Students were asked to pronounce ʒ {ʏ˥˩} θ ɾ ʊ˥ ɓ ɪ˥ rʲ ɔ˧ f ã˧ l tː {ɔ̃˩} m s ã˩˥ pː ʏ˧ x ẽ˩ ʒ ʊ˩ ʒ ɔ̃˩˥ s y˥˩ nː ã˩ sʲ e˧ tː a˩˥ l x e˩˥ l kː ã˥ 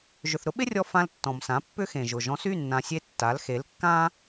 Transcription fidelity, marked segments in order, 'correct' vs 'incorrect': incorrect, correct

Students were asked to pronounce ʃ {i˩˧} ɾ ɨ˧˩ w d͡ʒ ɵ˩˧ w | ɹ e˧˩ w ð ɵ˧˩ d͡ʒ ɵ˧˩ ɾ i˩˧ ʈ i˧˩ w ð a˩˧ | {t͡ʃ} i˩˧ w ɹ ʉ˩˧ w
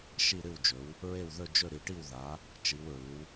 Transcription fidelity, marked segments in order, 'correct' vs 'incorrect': incorrect, correct

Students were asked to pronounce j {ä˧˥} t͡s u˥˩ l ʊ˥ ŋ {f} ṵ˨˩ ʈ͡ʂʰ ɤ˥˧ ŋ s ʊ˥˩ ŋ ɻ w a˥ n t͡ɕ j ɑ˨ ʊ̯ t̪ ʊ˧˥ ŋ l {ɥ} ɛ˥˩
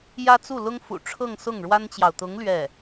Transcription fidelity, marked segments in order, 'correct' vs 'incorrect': incorrect, correct, correct

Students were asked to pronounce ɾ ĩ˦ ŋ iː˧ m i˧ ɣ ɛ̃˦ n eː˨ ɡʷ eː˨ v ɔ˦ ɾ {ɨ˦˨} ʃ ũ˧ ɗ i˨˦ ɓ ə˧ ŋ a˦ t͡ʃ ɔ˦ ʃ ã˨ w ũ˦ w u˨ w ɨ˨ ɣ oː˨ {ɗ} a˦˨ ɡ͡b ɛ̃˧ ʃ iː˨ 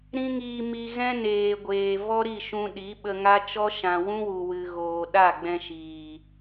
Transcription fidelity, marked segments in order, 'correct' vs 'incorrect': incorrect, correct

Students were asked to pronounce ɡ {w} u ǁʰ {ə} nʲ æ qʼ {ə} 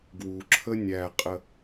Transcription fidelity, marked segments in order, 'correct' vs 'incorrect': correct, correct, correct

